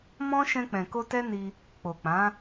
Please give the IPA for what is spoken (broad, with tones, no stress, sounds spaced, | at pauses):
m ɔ̃˦ ʃ ɛ̃˧ k͡p ɛ̃˨ k o˧ t ɛ˦ n i˧ | k͡p o˨ k͡p ã˨˦